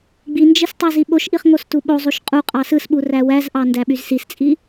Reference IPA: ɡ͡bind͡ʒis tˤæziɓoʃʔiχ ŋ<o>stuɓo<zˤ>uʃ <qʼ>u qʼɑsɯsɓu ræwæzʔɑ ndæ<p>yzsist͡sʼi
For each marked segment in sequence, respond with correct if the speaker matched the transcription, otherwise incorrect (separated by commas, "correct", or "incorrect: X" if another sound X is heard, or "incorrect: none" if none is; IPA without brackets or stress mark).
correct, correct, correct, incorrect: ɓ